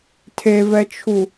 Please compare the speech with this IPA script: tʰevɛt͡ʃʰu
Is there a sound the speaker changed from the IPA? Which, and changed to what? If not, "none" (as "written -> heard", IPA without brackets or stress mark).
none